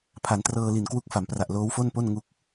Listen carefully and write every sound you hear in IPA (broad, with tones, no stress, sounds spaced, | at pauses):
pʰ a˩˦ n t r ɤː˧ l i˨˩ n k w u˦˥ k̚ f a˩˦ m p r a˨˩ ʔ l oː˦˥ w f o˥˩ n p o˥˩ n ŋ u˥˩ k̚